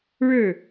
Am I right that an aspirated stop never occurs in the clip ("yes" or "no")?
yes